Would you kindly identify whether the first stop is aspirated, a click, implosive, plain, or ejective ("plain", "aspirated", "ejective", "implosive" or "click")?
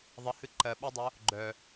click